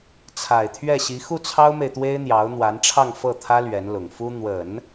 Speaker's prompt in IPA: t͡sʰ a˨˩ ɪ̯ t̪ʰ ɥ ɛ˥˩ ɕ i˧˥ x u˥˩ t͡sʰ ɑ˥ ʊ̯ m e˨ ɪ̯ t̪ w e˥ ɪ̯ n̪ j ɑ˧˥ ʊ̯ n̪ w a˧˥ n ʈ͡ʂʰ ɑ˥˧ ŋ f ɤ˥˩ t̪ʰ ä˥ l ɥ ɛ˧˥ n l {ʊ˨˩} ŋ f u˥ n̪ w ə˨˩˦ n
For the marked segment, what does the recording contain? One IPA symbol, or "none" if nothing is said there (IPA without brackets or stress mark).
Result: ʊ˨˩